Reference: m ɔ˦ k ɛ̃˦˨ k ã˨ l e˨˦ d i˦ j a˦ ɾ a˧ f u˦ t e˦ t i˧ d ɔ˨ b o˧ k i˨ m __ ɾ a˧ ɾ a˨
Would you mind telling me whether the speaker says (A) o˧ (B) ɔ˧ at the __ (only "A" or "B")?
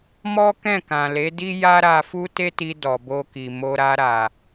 A